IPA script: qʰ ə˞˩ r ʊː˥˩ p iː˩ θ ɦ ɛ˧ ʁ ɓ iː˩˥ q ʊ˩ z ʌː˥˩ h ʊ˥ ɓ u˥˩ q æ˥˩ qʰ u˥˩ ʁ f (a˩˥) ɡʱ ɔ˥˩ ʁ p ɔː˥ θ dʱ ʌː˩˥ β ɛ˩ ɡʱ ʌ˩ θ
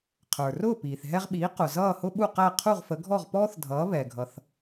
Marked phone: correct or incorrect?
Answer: incorrect